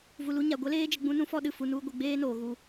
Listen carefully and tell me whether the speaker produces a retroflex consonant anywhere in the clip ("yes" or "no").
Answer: no